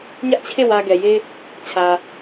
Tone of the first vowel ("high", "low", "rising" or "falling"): high